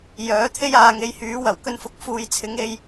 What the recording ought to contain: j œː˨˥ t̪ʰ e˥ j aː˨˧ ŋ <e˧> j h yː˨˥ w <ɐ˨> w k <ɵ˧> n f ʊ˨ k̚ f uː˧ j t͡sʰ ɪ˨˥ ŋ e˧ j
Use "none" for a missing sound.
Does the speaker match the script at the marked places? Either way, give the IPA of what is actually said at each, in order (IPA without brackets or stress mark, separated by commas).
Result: e˨˧, ɐ˨˩, ɵ˧